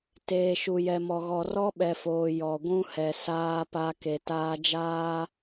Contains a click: no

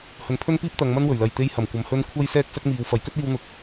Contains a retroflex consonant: no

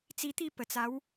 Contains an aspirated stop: no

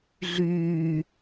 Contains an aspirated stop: no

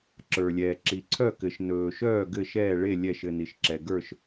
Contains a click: yes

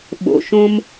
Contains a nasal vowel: yes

